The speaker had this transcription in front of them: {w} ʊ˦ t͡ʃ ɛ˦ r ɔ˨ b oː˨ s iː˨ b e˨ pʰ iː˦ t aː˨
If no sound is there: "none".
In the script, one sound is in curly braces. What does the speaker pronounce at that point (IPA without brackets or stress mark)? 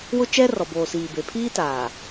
w